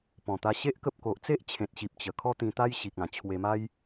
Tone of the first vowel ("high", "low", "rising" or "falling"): low